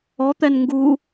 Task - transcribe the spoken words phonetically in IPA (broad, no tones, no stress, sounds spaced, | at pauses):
ɔ t̪ ɛ n ŋ ɡ u